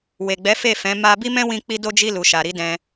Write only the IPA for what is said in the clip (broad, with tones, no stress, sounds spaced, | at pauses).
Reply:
w e˨ ɡ͡b ɛ˨˦ f e˦˨ f ɛ̃˨˦ m a˧ b i˦ m ɛ̃˦ w ĩ˧ k͡p i˦ d o˧ d͡ʒ i˧ l u˨ ʃ a˨ ɾ i˨˦ d ɛ̃˧